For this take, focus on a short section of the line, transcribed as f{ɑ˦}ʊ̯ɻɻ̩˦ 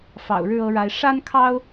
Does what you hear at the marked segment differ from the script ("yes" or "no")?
yes